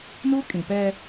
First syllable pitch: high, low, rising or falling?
high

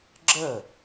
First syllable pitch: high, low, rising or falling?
falling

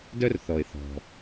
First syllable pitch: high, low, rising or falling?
high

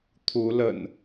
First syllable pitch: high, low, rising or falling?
rising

